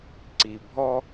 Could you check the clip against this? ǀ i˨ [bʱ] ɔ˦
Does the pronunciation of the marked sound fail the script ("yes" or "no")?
no